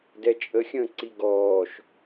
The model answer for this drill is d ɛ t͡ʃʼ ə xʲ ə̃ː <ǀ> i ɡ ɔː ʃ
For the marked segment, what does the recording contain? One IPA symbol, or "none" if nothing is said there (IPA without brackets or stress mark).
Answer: ǀ